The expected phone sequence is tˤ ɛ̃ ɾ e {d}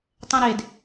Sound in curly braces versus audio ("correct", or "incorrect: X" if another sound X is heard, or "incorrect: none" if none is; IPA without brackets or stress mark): correct